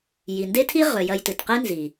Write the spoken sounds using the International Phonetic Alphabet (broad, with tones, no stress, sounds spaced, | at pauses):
j i˨ n d e˦ tʰ i˦ ʁ ɵ˨ j ɐ˧ j t ɨ˨ t q e˦ n z i˨